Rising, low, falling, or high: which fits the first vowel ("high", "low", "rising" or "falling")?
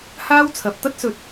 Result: high